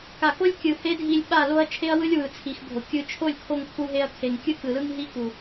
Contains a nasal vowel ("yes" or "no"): no